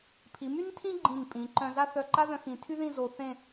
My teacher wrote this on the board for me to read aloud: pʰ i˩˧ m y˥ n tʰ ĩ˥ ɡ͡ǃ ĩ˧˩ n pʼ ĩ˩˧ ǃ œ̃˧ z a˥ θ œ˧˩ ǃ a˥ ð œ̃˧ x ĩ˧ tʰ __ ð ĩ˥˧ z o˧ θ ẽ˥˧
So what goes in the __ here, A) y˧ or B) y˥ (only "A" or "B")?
B